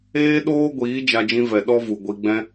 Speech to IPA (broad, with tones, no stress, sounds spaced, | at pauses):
eː˦ ɗ oː˦ ɡʷ iː˨˦ d͡ʒ a˧ d͡ʒ ĩ˧ v ɛ˨ ɗ ɔ˦ v u˨ ɡʷ i˧ ɡ͡b ɛ̃˦